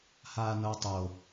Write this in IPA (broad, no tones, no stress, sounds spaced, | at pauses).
h aː n ɤ tˤ o